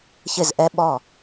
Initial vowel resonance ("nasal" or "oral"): oral